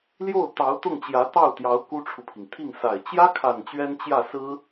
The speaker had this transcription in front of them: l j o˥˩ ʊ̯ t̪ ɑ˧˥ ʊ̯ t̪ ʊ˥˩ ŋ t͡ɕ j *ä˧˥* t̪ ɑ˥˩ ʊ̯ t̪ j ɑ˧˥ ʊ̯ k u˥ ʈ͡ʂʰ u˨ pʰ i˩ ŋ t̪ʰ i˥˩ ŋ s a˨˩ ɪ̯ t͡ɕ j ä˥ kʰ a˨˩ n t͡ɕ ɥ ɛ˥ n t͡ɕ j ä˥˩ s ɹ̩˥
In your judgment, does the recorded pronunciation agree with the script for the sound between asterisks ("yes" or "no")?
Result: yes